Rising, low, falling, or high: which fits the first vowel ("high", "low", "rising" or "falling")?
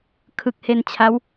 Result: low